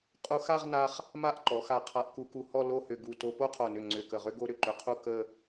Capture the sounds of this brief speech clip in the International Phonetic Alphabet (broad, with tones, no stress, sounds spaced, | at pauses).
qʼ u˧ x a˥˧ ʁ n a˧ χ | m a˥˧ ʔ ǃ ɔ˩˧ x a˧˩ qʰ a˧ ʔ k u˧ k u˧˩ h ɔ˥˧ l o˥˧ h ʏ˧˩ ɡ u˧˩ t o˧ p o˥ qʰ o˧˩ n ʏ˧˩ ŋ͡ǀ ʏ˧˩ k ə˧˩ ʁ ʏ˥ ɡ o˥ ɾ ʏ˧ ǃ ʏ˧ qʰ u˥ k ə˥˧